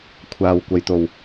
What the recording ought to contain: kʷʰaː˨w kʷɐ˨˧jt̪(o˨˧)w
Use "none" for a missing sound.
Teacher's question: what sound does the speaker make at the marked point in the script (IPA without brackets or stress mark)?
o˨˩